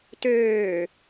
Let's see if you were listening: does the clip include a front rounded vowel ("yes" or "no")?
yes